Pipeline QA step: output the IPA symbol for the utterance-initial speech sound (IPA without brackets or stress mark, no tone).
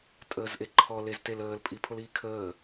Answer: tʼ